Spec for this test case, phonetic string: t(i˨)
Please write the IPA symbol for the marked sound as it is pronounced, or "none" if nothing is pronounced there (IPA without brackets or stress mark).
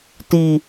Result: i˨